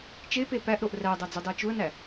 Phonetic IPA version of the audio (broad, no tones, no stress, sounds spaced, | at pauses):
t͡ʃ e p e p æ ʔ ɾ o ʔ r æ ə̯ dˤ æ d͡z u dˤ e t͡ʃ u ə̯ n æ